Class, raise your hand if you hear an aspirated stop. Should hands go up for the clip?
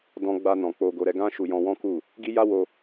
no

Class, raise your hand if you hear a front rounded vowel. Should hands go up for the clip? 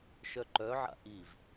yes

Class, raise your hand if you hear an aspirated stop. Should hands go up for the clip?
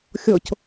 no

